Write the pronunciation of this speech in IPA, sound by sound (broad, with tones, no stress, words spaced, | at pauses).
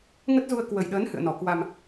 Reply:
ŋə˦˥t̚zu˧ə̯kwə˨˩jɗəː˨˦n hɨ̰˧˨ə̯nɔ˧˩kwa˧m